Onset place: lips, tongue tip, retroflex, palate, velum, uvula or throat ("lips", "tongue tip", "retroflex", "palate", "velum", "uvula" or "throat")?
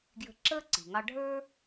velum